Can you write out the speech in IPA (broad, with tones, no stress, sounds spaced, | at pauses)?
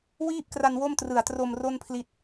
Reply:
w iː˥˩ p̚ k r a˧ n w o˥˩ m t r ɯ˨˩ a̯ t r o˧ m r o˥˩ n pʰ l i˦˥ t̚